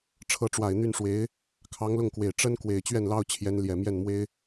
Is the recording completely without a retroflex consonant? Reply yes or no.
no